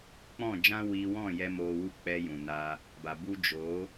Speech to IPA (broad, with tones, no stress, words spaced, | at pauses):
k͡pɔ̃˦˨d͡ʒã˦ wiː˧wɔ̃˦˨ jɛ˦moː˧wu˦ k͡pɛ˧ jũ˨naː˧ | ba˨bu˦ d͡ʒoː˨˦